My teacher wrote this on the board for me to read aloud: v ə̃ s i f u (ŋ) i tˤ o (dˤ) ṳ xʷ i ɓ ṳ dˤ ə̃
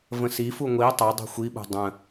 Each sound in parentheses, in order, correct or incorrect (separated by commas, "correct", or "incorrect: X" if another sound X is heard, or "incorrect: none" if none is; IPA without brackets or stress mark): incorrect: ŋʷ, correct